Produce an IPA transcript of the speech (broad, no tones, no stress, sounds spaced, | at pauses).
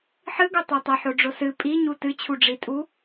ħ ɨ ɡ o tˤ ɛ tˤ ɐ ħ o ɖ͡ʐ o s ɨ pʼ i ɲ u t ɨ t͡ɕʰ u ɖ͡ʐ i tʼ u